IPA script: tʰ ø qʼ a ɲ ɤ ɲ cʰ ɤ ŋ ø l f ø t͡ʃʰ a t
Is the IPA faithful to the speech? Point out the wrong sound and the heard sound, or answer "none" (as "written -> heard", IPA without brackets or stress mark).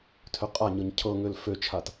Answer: none